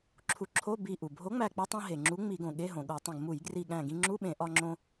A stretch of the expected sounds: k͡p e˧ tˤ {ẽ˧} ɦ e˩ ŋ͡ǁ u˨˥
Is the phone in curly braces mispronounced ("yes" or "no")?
no